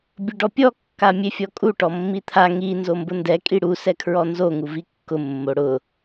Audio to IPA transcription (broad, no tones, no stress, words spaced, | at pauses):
bʲʊɖɔpʲɔ kːamʲefʲɔkʼu ʈɔmːit̪ʰa ŋi nzombʊndɛ kʼiɽu sɛkʰɹɔnzo ŋuvikːʊ mːoɽʊ